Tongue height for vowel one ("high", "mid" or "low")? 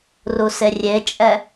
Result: high